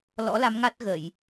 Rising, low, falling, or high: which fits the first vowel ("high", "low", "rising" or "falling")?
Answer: rising